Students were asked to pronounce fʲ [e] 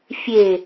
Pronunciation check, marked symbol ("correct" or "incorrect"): correct